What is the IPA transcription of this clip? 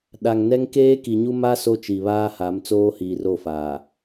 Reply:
ɗ a˨ ŋ n ɛ˦ ŋ k eː˦ k i˨ ɲ u˦ m a˦ s o˦ t͡ʃ i˨ β aː˦ h a˨˦ m t͡s oː˦ h iː˨ r o˦˨ f aː˨

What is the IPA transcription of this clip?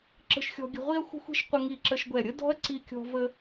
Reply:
ǁ ə̤˥ ʃ xʲ ɔ̤˥ ɡʲ ə̤˥ ʁʷ i˥ ɐ̯ xʷ ə̤˥ xʷ i̤˥ ʃ qʷ ə˥ ŋ i˥˧ ǁ ə˥ ʃ ɡʷ ɛ˥˧ ɾʲ ə˥ d ɔ̤˥ ɐ̯ ǀ i˥ kʲ ɔ̤˥ v ə˥

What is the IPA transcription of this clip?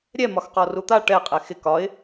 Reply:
ɾʲ ɛ m ɒ x q ɔ r u t̪ a ʈ ɛ qʼ ɛ x ɪ k ɒ ɪ̯

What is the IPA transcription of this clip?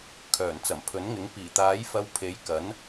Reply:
kʰ œː˨˩ n t͡s ɐ˨˩ m pʰ ɵ˨˥ n ŋ ɪ˨˥ ŋ p iː˨˩ t̪ aː˨˥ j f ɐ˧ w pʰ e˨˥ j k ɐ˨˥ n

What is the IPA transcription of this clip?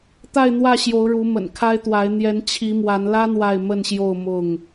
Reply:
t̪ a˥˨ ɪ̯ n̪ w ä˥˨ ɕ j o˨˦ ʊ̯ ɻ u˨˦ m ə̰˨˩ n kʰ a˦ ɪ̯ t̪ w a˨˦ ɪ̯ n̪ j ɛ˨˦ n t͡ɕʰ i˨˦ m w a˨˦ n l ä˦ n̪ w a˥˨ ɪ̯ m ə˥˨ n ɕ j o˥˨ ʊ̯ m ʊ˥˨ ŋ

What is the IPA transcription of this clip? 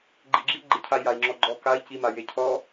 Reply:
ɡ͡ǃ i ɡ͡ǁ i ɡ͡ǃ ɪ cʰ a i̯ j a i̯ ŋ͡ǁ ɔ ɡ͡ǃ ɔ k a i̯ c i m a j e cʰ ɔ

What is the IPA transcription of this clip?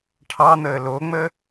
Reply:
ʈʰ ɑ n̪ əː l o ŋ͡m ə

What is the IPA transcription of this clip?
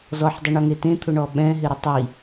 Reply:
z ɔ ħ dˤ ʊ ɳ ɔ ŋ e t ẽ t̪ʰ ʊ ɳ ɔ ɓ ɛ̃ ɦ ɪ ɾ ɪ tˤ i

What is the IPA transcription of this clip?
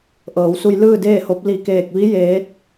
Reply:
ʔ ɤː˩˧ w s u˧ j l ɯː˥˨ d eː˥˨ h o˧˥ p̚ l i˧˩ k eː˧˩ k̚ ʋ i˧˥ j eː˧˥ t̚

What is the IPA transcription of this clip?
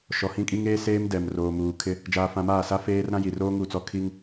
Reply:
ʃ ɔ˨ h ĩ˦ kʼ i˦ ŋ eː˦ s eː˦ m d ɛ˨ m r oː˨ m uː˨ kʰ ɪ˦ | d͡ʒ aː˨ f ã˨ m aː˦˨ s a˦ f eː˦ r ɾ ã˦ j i˨ r oː˦ ŋ u˦˨ t͡s ɔ˦ kʰ i˦ ŋ

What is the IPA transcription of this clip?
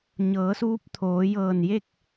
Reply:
ɲ ɤː˩˧ s uː˧˥ p̚ t̪ʰ oː˩˧ j ɤː˧˩ n j e˥˨ k̚

